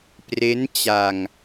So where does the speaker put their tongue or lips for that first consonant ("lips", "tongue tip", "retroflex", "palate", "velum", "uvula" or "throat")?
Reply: lips